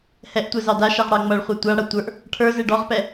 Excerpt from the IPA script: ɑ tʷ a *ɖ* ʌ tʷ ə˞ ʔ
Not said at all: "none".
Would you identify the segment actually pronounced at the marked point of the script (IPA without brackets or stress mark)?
ɽ